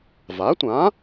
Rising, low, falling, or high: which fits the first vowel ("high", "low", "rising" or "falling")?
rising